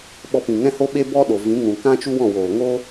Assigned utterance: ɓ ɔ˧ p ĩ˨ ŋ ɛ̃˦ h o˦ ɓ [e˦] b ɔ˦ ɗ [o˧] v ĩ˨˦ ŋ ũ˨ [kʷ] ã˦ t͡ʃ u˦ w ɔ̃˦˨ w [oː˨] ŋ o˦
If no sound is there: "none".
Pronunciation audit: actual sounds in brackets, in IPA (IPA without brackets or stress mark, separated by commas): e˦, o˨, k, oː˨